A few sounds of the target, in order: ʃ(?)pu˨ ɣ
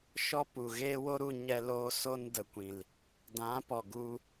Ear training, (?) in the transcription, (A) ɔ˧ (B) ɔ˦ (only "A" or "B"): B